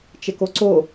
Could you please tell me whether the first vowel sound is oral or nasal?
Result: oral